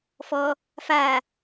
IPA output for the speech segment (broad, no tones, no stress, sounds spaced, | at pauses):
f ɔ | f a